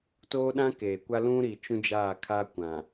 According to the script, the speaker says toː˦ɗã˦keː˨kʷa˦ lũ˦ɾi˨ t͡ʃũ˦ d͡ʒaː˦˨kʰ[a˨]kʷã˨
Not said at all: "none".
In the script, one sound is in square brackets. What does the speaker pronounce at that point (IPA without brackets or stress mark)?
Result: a˦